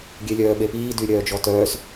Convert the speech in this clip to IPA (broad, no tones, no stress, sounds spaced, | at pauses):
ɡʲ e lʲ œː ɓ e p iː d y ɾʲ œː d͡ʒ ɔ t œː s